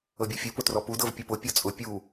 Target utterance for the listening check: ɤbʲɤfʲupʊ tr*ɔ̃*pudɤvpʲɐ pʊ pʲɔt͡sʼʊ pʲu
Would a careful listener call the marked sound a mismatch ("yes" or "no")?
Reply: yes